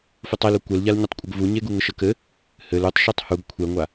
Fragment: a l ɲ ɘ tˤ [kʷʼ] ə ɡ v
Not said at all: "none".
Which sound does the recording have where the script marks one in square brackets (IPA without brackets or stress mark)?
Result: kʷʼ